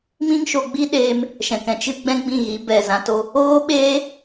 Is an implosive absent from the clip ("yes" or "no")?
no